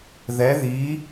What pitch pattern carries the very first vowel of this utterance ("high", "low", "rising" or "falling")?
rising